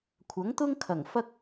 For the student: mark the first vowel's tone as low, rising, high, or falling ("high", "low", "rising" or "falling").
rising